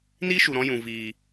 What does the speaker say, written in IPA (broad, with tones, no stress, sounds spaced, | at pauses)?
n iː˦ ʃ u˨ ɾ ɔ̃˧ j ũ˨ v iː˨